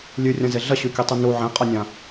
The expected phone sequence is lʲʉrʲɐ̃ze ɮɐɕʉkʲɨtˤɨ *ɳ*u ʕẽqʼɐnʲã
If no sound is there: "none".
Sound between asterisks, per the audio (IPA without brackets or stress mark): n